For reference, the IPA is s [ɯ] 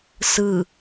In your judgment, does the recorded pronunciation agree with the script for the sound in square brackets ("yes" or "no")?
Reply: yes